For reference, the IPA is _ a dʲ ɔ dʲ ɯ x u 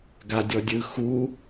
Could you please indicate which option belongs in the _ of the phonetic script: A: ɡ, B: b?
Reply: A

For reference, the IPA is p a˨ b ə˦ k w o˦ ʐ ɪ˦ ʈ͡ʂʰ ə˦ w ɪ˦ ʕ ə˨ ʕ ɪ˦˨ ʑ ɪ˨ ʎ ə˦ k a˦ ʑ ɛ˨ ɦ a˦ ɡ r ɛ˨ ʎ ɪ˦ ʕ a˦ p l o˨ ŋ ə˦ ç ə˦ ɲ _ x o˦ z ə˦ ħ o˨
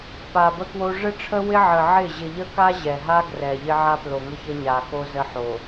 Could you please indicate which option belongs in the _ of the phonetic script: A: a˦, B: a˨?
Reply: B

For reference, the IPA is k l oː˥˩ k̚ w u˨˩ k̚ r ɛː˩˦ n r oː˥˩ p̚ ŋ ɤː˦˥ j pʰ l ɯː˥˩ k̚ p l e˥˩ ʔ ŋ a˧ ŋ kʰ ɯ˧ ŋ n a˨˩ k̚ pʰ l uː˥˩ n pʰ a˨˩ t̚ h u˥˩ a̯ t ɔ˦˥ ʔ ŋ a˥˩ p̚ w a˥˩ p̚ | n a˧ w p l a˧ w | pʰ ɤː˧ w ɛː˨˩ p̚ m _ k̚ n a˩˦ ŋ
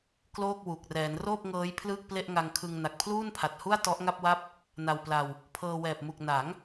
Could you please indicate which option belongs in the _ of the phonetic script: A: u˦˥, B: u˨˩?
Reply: B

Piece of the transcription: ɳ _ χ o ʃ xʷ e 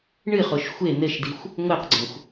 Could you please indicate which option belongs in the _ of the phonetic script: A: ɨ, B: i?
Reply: A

